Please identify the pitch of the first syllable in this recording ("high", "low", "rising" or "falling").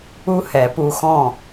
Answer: high